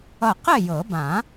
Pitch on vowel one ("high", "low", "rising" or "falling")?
falling